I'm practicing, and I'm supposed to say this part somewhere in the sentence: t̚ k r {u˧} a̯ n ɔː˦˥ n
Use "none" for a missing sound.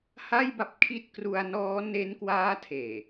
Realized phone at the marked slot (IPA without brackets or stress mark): u˧